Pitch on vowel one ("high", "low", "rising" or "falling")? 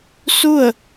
falling